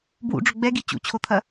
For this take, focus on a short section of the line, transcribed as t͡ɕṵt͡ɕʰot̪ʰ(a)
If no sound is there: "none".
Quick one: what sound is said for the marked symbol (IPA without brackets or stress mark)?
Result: ɐ